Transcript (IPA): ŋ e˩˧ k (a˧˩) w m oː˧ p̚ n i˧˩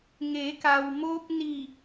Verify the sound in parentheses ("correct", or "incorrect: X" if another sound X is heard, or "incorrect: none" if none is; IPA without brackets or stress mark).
incorrect: a˩